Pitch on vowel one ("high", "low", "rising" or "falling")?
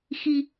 low